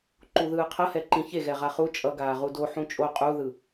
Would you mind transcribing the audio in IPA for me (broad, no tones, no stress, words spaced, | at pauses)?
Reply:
ǃuðɯːqʰʌhɛ ǃĩçe ɣɛʁaχu t͡ʃʼʌ ɡaːʁudo ħũt͡ʃʼo qʼuðɯ